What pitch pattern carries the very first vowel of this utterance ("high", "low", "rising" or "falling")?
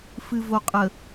low